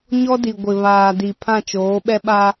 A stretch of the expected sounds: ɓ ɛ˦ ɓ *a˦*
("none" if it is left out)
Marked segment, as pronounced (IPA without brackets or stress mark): a˦